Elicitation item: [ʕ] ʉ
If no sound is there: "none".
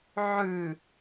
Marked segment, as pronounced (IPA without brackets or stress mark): ʕ